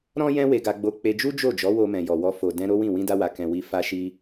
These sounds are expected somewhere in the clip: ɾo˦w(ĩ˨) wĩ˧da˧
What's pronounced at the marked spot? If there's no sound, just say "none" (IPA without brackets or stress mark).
ĩ˦˨